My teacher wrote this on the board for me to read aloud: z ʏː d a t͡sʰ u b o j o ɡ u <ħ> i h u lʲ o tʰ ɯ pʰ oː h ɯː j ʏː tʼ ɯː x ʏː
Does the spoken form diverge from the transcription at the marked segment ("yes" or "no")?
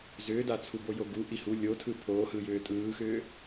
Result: yes